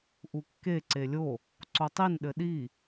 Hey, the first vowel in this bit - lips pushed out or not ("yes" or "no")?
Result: yes